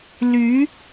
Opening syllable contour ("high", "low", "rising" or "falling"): rising